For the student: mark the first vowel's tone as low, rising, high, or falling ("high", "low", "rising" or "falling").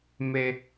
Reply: high